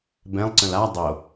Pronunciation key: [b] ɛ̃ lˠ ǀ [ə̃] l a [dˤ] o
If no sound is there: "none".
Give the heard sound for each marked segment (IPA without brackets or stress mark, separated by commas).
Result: b, ə̃, dˤ